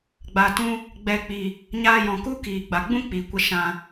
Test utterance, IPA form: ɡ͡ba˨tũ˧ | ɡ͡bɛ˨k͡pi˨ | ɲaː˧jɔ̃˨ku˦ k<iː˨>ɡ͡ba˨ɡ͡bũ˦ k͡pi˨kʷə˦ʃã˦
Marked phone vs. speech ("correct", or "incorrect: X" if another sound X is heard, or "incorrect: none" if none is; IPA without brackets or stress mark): correct